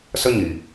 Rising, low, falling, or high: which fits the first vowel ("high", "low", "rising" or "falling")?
high